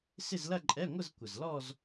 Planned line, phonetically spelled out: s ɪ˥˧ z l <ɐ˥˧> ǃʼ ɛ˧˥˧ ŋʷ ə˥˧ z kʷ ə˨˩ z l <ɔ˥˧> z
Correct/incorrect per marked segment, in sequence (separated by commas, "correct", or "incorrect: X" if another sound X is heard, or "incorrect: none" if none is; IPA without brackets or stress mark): correct, correct